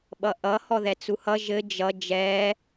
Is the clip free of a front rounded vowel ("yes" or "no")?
yes